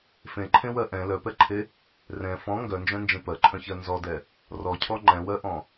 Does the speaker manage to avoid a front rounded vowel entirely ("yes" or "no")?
no